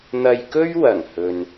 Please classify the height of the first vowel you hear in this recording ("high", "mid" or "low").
low